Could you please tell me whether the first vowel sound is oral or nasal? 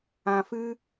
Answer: nasal